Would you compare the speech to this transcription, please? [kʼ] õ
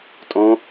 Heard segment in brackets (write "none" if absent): tʼ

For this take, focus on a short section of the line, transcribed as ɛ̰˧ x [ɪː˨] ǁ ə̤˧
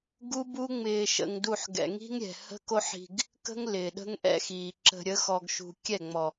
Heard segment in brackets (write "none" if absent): iː˨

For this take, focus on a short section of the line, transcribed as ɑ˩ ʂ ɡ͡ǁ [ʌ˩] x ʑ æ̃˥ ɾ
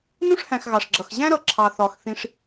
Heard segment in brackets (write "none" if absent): ʌ˩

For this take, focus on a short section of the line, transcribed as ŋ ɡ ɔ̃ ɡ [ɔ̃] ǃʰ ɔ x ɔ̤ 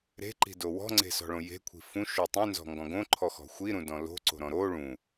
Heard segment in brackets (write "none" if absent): õ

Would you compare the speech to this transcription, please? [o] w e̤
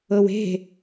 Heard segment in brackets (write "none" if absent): ɤ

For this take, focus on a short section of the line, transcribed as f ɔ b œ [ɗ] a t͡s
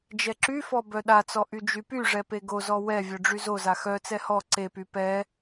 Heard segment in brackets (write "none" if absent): ɗ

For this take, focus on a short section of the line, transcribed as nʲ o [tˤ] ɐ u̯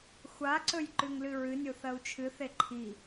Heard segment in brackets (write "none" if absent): θ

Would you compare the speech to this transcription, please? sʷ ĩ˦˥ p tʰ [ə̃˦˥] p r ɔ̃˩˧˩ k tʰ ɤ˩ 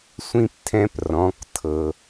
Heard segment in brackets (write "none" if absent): ɛ̃˦˥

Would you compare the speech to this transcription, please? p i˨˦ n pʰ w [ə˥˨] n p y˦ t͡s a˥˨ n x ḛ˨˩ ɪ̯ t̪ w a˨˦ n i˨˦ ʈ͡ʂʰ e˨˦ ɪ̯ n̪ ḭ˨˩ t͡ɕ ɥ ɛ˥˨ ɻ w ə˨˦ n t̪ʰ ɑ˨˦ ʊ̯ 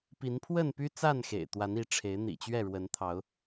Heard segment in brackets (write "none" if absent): ə˥˨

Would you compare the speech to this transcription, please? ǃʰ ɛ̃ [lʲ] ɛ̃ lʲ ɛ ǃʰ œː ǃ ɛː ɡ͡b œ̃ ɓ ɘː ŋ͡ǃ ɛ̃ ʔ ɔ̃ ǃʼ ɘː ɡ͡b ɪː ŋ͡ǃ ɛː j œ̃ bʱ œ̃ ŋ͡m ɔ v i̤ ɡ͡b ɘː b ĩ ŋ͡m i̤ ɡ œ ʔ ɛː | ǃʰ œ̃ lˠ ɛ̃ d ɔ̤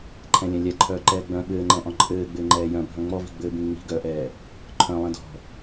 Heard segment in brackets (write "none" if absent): lʲ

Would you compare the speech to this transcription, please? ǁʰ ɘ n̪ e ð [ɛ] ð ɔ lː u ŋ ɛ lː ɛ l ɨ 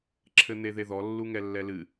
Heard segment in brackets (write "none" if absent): e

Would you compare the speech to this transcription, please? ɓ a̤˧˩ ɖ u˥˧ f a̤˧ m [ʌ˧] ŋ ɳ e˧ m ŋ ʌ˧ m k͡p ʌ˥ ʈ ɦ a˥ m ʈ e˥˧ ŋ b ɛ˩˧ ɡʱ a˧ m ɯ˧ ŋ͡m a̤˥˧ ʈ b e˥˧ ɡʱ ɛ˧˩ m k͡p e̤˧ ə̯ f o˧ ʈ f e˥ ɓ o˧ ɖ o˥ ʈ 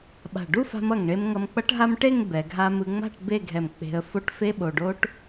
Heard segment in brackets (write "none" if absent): ʌ˧˩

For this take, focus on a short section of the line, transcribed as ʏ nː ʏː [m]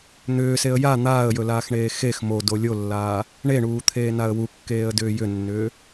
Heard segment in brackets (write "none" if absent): none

